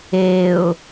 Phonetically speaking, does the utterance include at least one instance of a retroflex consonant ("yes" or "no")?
no